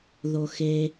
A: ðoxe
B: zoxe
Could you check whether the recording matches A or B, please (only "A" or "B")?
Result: A